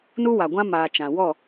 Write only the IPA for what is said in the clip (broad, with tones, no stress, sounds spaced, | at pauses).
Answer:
n u˦ w a˨ ɡʷ ã˦ m aː˨ t͡ʃ ã˨ w ɔ˦˨